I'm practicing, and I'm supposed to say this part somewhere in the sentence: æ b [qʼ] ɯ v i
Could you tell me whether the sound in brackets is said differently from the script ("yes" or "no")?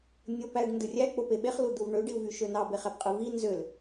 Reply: no